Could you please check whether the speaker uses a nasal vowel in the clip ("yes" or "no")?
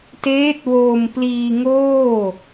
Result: no